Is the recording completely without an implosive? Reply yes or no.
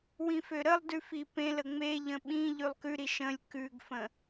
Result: no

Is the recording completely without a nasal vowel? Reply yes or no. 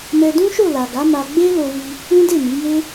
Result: no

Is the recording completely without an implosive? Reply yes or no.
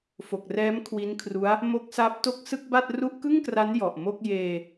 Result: yes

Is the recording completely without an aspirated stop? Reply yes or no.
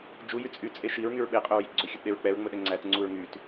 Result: yes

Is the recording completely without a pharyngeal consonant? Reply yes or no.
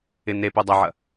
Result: no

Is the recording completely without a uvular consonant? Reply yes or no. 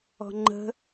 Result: yes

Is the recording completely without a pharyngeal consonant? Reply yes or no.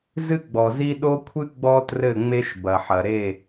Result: no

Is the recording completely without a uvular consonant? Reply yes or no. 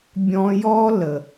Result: yes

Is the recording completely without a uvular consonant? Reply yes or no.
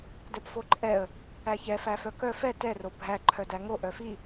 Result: yes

